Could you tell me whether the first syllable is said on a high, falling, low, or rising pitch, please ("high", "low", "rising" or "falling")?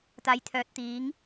low